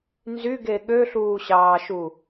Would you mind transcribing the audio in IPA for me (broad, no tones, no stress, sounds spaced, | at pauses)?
n z y ɡ e ɠ ø ɬ uː ɕ ɑː ʃ u